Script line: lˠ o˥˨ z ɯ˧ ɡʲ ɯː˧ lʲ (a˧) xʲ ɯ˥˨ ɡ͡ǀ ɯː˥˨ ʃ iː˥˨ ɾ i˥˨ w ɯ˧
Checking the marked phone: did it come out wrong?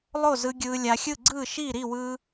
no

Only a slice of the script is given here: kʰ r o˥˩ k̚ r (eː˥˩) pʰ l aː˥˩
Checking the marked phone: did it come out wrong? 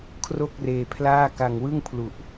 yes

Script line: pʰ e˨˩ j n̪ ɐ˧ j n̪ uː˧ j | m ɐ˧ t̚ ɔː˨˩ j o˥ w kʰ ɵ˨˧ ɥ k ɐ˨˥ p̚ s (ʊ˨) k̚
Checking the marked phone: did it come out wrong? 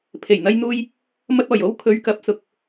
yes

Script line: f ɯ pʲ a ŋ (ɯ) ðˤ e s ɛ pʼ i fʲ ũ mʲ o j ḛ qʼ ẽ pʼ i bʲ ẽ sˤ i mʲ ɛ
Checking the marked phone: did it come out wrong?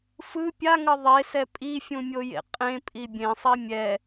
yes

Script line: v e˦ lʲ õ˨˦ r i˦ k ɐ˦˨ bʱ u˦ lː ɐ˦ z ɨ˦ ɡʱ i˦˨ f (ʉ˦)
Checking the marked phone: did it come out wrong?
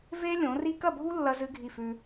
no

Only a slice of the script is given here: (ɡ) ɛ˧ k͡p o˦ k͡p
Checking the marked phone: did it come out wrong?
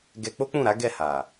no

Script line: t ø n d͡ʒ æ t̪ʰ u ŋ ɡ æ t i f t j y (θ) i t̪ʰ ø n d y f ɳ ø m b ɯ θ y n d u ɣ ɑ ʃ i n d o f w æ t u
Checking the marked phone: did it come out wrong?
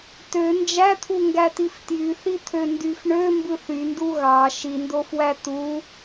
no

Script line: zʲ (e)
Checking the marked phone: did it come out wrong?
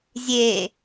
no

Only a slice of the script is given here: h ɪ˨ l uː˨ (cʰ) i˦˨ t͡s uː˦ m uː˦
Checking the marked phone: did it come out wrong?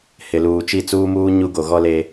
yes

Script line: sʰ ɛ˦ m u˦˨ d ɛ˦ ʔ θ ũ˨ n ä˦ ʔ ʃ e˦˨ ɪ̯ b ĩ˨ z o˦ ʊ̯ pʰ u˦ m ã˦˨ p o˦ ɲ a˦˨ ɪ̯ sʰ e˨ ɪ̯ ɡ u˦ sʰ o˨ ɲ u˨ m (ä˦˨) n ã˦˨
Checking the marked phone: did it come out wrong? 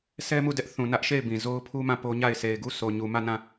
no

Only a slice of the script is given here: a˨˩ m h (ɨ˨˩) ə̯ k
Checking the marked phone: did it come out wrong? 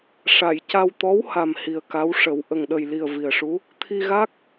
yes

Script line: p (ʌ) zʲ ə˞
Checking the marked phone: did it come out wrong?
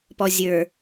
yes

